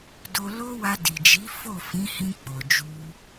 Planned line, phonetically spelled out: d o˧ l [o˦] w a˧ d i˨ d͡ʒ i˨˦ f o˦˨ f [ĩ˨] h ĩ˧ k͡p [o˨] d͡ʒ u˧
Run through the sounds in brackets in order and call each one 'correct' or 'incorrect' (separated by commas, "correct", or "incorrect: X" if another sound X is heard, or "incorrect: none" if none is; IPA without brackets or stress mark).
correct, incorrect: ĩ˨˦, correct